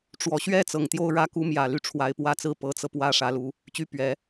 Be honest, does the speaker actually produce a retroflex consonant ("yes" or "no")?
yes